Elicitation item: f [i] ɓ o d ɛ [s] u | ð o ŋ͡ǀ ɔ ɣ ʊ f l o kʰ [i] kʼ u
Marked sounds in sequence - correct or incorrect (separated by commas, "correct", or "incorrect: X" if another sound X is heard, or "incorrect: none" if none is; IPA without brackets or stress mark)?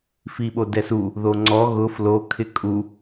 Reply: correct, correct, incorrect: ɪ